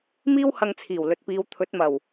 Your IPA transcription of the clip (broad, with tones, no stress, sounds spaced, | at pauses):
m iː˥ w h ɐ˧ ŋ t͡sʰ iː˨˩ w l ɵ˨ t̚ p iː˨˧ w t̪ʰ ɵ˨˥ t̚ m ɐ˨˩ w